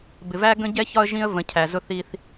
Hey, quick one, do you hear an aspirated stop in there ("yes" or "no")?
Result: yes